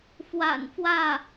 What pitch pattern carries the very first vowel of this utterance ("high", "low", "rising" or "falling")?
low